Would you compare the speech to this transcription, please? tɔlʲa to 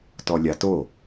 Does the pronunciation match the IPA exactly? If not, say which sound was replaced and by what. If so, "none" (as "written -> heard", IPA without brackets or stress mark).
none